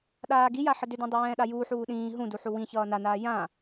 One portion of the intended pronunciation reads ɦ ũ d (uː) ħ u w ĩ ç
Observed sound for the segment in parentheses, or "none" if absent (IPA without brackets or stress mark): u